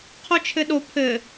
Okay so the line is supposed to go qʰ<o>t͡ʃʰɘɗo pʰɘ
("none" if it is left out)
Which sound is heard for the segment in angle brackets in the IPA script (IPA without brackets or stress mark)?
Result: o